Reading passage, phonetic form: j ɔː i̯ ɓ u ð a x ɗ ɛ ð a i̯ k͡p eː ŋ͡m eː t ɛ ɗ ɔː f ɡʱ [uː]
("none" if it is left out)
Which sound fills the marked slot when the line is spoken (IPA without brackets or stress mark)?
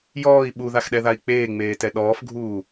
uː